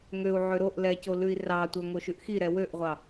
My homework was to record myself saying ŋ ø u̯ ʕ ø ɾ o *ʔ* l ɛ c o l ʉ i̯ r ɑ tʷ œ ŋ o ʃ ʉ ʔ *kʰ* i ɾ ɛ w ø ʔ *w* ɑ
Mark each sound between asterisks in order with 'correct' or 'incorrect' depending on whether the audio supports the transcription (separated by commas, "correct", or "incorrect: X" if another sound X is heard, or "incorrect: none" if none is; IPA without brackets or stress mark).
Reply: correct, incorrect: x, incorrect: ʁʷ